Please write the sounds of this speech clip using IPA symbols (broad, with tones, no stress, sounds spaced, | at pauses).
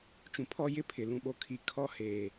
t͡ʃ ũ˨ pʰ ɔ˦ j ɪ˦ pʰ ɪ˨ l ũ˨ ɓ o˨ kʰ i˨ kʰ ɔ˦ h eː˨